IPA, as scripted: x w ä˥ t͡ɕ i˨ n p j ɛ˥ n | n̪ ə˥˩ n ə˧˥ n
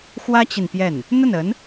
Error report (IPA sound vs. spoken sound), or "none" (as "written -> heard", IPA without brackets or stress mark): ɛ˥ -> ɛ˥˩